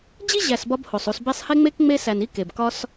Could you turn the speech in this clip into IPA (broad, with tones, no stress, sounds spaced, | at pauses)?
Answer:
d͡ʑ i˥ ʑ æ˨ s b ɒ˦ b h o˩ sˤ u˨ s b e˦ sˤ h e˥ ŋ͡m e˥ k ŋ͡m e˥ s æ˨ n i˥ k e˩ b k ɒ˦ s